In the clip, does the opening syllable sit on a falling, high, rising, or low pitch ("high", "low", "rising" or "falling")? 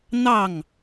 falling